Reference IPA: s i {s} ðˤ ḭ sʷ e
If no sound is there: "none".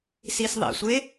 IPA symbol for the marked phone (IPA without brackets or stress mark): s